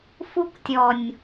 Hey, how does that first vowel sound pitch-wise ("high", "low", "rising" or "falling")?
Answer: high